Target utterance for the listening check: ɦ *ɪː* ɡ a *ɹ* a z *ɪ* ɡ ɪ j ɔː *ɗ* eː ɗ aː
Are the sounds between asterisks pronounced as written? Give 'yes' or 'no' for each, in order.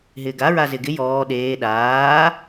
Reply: yes, yes, yes, yes

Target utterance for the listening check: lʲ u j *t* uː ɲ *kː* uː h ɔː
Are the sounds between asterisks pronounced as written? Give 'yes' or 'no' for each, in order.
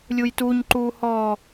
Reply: yes, no

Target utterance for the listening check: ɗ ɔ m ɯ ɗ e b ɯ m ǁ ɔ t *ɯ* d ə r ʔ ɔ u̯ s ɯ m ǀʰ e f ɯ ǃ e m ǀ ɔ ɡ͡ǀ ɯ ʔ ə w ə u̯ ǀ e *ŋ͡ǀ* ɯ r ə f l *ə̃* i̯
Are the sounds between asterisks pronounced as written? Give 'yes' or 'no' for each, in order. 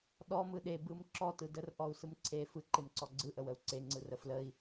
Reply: yes, yes, no

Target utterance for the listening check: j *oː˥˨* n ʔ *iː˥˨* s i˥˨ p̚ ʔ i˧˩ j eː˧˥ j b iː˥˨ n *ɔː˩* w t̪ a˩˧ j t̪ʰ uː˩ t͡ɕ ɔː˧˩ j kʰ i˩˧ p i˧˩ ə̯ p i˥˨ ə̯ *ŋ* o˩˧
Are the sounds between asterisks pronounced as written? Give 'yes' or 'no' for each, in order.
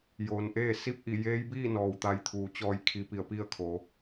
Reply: no, no, yes, no

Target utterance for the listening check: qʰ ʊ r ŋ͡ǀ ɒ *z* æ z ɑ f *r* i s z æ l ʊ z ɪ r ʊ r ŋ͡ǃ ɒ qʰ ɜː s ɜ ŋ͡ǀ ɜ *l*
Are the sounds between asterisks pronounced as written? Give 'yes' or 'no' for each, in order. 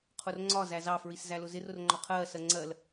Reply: yes, no, yes

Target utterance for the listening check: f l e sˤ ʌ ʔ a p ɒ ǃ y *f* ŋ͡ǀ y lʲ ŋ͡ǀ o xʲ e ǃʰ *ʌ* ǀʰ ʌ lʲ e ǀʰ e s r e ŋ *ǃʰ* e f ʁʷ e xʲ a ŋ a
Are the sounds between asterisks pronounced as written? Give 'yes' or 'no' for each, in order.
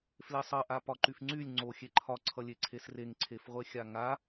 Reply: yes, no, no

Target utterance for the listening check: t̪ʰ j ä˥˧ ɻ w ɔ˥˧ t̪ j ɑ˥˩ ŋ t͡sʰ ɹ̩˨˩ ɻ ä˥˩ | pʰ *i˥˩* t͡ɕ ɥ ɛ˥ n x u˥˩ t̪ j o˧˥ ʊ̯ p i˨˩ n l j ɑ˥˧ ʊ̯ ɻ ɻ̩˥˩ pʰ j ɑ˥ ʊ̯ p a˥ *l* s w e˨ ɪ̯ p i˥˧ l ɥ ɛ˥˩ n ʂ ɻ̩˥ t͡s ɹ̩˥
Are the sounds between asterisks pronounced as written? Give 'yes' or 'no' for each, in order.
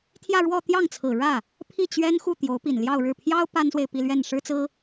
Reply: yes, no

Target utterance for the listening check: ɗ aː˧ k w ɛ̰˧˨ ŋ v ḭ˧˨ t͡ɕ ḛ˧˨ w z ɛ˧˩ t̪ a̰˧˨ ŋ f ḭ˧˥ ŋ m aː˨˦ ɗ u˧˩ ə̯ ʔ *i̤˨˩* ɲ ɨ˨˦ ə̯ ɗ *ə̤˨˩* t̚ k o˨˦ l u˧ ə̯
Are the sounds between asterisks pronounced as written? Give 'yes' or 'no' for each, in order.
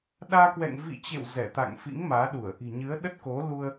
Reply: yes, no

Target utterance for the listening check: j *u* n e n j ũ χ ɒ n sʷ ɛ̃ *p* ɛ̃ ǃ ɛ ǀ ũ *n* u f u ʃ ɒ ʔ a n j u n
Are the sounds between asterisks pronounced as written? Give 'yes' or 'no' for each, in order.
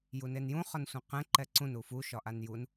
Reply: yes, no, yes

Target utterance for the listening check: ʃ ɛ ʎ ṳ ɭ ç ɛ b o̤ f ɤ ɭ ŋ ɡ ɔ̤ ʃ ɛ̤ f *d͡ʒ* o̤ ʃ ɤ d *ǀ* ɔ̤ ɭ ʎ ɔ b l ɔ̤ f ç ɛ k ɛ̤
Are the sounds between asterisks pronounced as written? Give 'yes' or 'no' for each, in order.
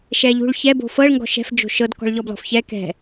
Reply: yes, no

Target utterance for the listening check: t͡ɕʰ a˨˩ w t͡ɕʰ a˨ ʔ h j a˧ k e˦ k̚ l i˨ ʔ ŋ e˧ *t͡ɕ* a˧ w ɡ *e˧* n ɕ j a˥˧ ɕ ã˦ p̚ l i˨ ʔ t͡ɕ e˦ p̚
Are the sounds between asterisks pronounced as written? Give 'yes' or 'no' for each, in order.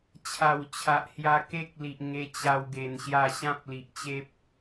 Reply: yes, yes

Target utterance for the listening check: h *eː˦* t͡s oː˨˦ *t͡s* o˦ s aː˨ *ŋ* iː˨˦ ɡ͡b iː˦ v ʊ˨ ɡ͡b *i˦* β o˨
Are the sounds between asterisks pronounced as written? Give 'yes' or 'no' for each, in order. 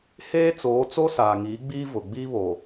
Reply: yes, yes, yes, yes

